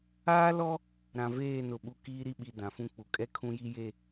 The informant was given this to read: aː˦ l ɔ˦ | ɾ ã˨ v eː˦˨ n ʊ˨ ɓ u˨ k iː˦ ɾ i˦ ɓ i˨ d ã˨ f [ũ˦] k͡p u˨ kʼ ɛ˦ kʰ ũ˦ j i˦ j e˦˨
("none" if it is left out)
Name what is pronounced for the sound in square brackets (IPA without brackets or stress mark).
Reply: ũ˦